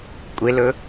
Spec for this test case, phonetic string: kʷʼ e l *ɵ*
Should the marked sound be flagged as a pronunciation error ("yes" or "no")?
no